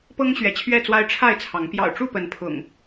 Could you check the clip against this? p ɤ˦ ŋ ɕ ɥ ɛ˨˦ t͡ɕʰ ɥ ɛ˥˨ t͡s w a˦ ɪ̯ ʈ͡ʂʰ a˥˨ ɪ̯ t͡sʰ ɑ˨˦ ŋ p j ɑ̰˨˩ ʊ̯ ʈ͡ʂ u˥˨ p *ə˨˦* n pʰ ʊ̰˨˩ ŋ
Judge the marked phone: correct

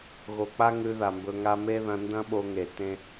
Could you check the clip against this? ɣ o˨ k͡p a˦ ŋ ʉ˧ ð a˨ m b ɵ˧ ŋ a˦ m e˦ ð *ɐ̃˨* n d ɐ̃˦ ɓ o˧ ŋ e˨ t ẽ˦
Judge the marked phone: incorrect: ɐ̃˧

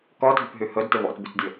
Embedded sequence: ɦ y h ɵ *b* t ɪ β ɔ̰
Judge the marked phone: incorrect: d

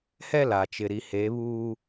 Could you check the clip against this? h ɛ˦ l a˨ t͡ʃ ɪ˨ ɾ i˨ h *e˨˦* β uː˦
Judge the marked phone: correct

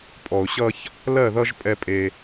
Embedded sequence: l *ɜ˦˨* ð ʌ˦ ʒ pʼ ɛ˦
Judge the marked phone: correct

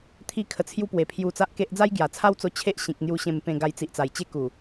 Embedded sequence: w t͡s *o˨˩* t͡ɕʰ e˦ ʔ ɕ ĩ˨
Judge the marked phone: incorrect: o˧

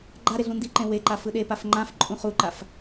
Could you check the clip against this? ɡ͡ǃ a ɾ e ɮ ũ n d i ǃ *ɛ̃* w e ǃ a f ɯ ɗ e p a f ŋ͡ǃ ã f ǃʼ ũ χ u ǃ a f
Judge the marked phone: incorrect: ẽ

